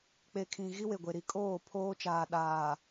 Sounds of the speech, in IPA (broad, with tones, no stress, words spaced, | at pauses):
k͡pe˨kʰĩ˨ ɣi˦we˨ɡʷe˨ ɾi˨kʼoː˦˨ pʰoː˦t͡ʃaː˨ ɗaː˨